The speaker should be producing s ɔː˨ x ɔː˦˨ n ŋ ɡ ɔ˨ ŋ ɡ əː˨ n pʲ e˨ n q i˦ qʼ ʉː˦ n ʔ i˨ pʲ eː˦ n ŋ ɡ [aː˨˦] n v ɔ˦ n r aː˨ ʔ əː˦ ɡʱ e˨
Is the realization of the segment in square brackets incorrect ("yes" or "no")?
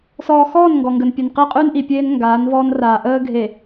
no